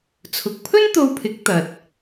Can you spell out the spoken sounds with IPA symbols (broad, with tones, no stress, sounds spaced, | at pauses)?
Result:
t͡sʰ ʊ˨ k̚ pʰ ɵ˥ n t̪ o˧ w pʰ ɪ˨˥ k̚ t̪ ɐ˧ t̚